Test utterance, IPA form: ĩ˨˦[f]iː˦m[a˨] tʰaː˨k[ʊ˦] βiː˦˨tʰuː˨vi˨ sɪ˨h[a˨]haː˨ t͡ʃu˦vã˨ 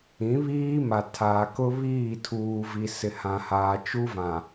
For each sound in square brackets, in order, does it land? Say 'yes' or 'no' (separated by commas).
no, yes, yes, no